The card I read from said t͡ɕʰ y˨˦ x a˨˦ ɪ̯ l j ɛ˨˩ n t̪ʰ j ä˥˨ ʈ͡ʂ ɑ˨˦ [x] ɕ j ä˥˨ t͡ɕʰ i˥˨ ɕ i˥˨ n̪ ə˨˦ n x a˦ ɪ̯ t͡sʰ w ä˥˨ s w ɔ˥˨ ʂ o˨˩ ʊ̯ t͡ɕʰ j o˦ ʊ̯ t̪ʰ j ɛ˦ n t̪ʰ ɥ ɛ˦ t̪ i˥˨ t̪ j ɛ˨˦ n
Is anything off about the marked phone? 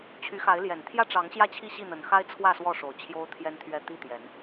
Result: yes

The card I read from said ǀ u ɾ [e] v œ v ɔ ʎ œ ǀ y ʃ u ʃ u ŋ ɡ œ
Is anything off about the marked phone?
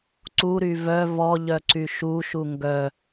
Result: yes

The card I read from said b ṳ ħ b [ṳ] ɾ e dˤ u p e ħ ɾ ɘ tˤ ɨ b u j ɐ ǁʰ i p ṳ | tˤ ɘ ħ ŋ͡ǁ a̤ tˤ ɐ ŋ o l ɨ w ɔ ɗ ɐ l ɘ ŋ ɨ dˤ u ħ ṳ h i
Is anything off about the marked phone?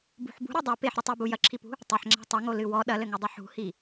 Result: no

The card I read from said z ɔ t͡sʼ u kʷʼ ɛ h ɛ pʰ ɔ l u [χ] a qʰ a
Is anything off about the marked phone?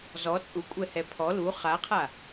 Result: no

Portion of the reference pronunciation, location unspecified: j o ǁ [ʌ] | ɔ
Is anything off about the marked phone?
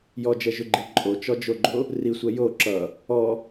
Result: no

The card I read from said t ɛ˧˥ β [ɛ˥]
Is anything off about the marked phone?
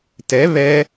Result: no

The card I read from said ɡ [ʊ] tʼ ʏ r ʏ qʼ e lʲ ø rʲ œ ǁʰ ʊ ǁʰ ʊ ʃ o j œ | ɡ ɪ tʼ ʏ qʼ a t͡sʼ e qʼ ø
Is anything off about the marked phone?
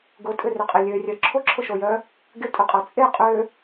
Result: no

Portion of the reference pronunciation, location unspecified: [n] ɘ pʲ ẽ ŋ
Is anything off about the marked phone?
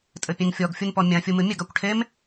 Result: yes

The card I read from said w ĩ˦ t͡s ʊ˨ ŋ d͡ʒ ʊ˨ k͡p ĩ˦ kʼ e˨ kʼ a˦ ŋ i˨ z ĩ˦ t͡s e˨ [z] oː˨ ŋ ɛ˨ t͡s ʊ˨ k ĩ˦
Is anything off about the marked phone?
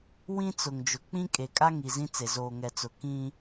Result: no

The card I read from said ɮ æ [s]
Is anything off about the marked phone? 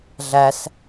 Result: no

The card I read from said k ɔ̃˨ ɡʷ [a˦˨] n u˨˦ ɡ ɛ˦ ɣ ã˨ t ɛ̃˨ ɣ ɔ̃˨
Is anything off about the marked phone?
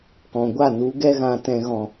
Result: no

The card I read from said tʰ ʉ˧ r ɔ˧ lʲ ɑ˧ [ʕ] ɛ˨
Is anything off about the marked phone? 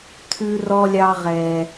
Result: yes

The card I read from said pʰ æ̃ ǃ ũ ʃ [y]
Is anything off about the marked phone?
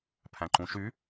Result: no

